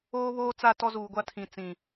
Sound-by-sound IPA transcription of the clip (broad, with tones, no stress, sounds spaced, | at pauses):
oː˦ β oː˦ t͡s a˦˨ t ɔ˦ z uː˨ ɡʷ a˦ tʰ ĩ˨ t͡s ĩ˨